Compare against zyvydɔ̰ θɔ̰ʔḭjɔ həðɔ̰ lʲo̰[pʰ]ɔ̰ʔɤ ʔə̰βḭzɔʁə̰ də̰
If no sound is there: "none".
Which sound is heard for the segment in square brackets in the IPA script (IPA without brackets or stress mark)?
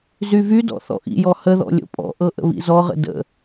pʼ